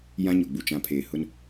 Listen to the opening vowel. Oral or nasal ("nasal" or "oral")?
nasal